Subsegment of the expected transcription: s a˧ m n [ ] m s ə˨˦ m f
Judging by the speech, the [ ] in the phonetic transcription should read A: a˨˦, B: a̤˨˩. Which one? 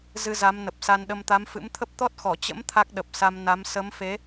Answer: A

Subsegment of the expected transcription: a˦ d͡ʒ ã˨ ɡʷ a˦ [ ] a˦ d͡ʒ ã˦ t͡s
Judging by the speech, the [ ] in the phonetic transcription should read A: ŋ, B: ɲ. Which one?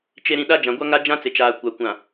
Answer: A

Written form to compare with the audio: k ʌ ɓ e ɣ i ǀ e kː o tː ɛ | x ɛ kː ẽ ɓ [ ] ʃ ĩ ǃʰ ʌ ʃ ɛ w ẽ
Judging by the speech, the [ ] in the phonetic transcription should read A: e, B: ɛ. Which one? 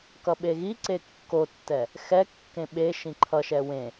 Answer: A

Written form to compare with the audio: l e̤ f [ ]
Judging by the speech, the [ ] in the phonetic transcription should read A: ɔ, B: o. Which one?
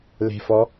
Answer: A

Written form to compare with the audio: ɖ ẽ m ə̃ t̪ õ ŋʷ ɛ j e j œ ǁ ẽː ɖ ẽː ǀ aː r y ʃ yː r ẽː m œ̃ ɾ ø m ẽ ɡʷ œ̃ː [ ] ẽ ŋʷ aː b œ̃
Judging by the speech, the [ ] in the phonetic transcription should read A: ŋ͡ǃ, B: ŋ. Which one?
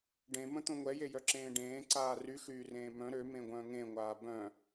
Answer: B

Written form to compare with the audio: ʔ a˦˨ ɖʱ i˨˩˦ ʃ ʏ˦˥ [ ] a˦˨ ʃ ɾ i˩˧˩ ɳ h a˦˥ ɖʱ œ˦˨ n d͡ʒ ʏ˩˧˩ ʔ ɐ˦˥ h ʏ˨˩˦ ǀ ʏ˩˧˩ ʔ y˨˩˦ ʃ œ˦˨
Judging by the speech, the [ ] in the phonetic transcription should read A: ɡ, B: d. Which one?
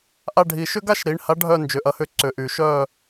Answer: A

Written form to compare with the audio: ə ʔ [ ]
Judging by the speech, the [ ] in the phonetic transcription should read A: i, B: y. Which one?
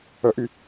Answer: B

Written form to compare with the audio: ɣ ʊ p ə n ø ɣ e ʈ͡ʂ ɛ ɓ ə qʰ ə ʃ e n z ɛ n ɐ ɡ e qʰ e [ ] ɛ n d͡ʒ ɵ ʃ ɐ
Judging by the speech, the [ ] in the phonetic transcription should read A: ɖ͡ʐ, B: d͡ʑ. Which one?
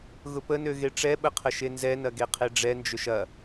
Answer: A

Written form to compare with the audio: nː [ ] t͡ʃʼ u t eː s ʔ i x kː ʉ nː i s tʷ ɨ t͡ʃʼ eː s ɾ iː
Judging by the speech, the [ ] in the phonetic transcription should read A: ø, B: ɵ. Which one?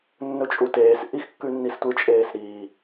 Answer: B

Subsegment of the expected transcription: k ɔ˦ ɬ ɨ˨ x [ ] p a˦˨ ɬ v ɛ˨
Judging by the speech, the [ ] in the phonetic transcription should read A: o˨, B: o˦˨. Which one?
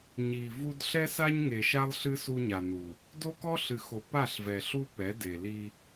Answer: A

